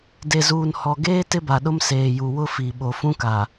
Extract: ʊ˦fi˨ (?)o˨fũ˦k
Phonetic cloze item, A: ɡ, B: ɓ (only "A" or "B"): B